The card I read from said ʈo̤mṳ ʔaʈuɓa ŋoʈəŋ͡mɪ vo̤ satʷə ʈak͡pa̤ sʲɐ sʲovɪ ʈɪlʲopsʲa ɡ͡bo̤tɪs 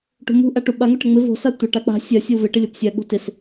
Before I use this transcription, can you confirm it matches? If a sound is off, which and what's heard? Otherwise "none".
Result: none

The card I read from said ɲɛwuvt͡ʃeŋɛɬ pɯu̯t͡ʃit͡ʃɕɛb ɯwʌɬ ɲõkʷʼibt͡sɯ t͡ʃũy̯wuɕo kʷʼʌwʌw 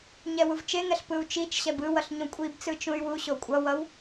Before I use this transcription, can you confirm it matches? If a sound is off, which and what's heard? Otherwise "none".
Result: none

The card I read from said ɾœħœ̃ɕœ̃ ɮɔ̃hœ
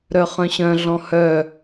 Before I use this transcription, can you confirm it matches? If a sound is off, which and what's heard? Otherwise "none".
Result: ħ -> χ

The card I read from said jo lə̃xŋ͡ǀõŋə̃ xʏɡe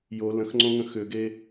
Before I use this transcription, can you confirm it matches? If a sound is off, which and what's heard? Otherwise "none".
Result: none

